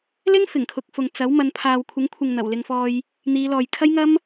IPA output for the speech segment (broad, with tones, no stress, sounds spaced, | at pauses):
l ɪ˥ ŋ f ɪ˨˩ ŋ kʰ ʊ˨ k̚ f ʊ˨ ŋ t͡s ɐ˨˥ w m ɐ˨˧ n pʰ aː˨ w kʷʰ ɪ˨˥ ŋ kʷʰ ɪ˨ ŋ n̪ ɐ˨˩ w l ɪ˧ ŋ f ɔː˧ j | n̪ iː˨˧ l ɔː˨ j kʰ ɐ˥ j ŋ ɐ˥ m